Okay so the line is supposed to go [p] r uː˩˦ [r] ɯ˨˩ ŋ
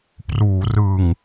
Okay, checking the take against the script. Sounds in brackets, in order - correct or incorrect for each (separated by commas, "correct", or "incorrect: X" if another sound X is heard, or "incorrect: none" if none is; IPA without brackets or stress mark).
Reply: correct, correct